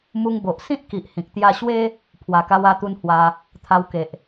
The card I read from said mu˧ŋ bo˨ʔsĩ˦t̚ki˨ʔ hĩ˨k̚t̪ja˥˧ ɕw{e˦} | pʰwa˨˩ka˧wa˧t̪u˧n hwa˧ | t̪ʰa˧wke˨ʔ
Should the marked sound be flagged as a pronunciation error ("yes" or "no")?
no